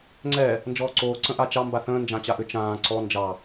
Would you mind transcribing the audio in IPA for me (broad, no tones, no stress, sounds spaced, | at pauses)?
ŋ͡ǀ ɛ | n d͡ʒ ɔː ǀ oː ǀ ə̃ ʔ a t͡ʃ ɑ m b a θ ə̃ː n d͡ʒ ã t͡ɕ a ʔ ʏ t͡ʃ ãː ǀ ɔ n d͡ʒ ɑ